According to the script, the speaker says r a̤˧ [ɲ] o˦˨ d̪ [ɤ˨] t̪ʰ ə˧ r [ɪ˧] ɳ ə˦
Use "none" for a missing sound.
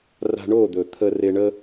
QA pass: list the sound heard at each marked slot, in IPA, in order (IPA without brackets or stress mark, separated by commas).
ɳ, ɵ˨, ɪ˧